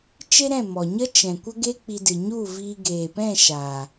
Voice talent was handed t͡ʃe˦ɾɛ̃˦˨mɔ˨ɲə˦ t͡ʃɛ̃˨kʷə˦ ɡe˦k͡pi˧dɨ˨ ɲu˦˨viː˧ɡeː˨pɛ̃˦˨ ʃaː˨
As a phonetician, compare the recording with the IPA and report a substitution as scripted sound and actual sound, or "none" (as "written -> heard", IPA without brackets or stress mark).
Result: none